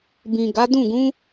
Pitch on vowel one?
low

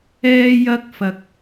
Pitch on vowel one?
high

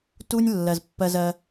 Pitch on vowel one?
high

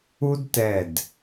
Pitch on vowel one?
high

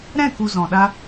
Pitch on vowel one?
falling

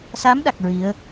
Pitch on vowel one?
rising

